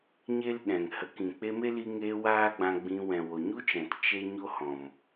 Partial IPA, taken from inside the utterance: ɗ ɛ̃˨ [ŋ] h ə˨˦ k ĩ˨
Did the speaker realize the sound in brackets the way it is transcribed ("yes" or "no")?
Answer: yes